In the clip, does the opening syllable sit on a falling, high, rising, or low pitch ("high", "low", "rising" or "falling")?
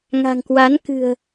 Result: low